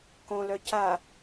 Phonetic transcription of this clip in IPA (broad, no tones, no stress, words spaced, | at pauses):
kõlœ ca